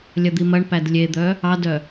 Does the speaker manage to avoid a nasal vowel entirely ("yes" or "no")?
yes